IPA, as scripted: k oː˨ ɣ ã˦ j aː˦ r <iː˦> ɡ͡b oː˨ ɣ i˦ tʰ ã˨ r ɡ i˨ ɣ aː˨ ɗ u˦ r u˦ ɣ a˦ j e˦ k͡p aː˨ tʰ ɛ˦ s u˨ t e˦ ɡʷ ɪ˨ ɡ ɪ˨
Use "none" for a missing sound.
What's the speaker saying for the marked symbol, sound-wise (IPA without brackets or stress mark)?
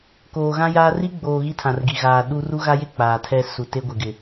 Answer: i˦